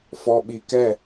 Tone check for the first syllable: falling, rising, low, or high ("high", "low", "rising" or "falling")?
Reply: low